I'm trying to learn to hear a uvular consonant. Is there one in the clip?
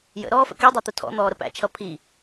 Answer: no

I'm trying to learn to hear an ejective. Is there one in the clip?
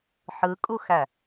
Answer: yes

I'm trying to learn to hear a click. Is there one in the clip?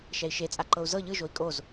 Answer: yes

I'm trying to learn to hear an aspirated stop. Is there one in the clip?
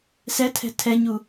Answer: yes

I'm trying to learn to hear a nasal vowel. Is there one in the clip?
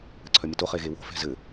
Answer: no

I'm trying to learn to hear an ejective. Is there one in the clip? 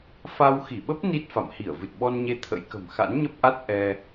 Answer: no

